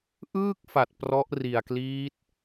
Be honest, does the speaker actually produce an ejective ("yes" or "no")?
no